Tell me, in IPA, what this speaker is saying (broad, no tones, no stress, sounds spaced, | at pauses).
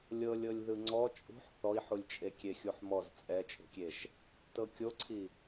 lʲ ɤ lʲ ɤ lʲ ð ɯ ŋ͡ǀ ɔ t͡ʃʼ ṳ ħ θ ɔ i̯ ħ u lʲ t͡ʃʼ e kʲ e xʲ u ħ m ɔ z t͡sʼ ɛ t͡ʃʼ ṳ kʲ e ʃ | t ɤ kʲ o ǀʰ i